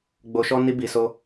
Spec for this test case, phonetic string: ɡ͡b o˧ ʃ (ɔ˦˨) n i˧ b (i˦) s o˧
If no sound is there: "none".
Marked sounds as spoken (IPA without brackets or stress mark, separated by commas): ɔ˦, i˨